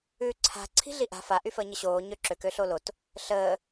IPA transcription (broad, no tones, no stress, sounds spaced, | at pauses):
ʉː ǀʰ a̤ ǀʰ i̤ ɮ i ʔ a̤ f a ʔ y f əː ɲ ə ɕ oː ɲ ø ǁ ø k ø ɬ o l o t | ɬ əː